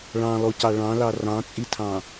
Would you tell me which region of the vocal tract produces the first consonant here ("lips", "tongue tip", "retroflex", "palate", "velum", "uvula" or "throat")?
retroflex